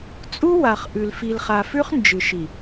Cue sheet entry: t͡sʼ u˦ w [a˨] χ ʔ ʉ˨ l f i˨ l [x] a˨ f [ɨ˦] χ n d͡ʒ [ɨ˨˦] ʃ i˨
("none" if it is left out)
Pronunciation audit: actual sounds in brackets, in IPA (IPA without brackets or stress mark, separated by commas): a˨, χ, ʉ˦, ɨ˨